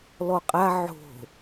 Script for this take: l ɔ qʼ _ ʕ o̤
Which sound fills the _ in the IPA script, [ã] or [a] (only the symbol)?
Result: a